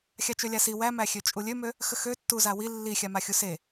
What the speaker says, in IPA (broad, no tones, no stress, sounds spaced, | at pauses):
xʲ a t͡ʃ ø lʲ a s i w æ m æ xʲ ø t͡ʃʼ u lʲ ø m ø | x ə x ø tː u z a w i lː i xʲ a m a xʲ u s e